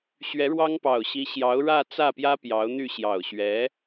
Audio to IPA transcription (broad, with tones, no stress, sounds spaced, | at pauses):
ɕ ɥ ɛ˧˥ ɻ w ɑ˥ ŋ p ɑ˨˩ ʊ̯ ɕ i˧˥ ɕ j ɑ˧˥ ʊ̯ ɻ ä˥˧ t͡s ä˥˩ p j ä˥ p j ɑ˧˥ ʊ̯ n̪ y˥˩ ɕ j ɑ˨˩ ʊ̯ ɕ ɥ ɛ˧˥